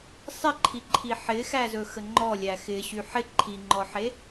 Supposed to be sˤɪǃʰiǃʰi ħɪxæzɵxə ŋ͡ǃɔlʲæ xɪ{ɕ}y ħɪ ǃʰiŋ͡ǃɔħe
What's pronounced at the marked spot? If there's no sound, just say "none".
ɕ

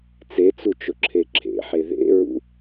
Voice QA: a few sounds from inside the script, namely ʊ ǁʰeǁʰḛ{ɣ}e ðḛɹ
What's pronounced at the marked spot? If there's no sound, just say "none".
ħ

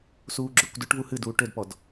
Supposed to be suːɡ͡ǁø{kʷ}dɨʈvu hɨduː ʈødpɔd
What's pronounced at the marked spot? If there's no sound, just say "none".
kʷ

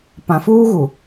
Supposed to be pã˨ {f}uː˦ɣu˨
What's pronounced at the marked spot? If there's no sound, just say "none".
f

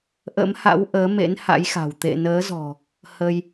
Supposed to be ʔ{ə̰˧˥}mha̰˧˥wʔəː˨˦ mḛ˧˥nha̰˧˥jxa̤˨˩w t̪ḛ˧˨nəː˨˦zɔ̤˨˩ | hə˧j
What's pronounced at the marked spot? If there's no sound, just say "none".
ə̰˧˥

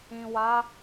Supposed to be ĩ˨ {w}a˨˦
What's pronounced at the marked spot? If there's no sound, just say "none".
w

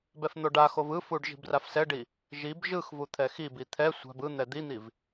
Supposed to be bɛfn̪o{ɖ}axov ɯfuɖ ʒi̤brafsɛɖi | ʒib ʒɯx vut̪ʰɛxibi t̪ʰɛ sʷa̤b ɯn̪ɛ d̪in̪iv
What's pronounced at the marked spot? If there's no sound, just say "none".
ɖ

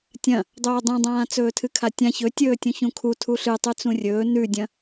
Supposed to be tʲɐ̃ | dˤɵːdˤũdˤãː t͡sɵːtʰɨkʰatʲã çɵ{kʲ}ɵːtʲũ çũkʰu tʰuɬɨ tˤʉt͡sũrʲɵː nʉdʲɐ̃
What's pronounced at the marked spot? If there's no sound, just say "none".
tʲ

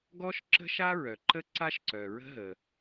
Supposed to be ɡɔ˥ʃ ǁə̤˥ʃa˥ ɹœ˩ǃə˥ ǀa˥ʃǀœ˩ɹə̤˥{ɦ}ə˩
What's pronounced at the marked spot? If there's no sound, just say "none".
ɦ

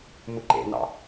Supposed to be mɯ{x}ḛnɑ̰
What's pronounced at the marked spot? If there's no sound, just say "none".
ǃ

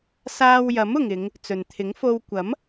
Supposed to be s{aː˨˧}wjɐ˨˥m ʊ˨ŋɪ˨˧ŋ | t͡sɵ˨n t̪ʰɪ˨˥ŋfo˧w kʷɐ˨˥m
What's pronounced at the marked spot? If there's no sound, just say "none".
aː˧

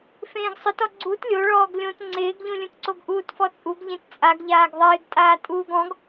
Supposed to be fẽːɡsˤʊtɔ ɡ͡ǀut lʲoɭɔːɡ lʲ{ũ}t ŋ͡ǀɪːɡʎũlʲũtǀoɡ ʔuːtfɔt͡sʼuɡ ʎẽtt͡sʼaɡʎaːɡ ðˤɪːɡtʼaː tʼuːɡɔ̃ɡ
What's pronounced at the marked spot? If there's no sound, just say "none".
õ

